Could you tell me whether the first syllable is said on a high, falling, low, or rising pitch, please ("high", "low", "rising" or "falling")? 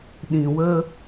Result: low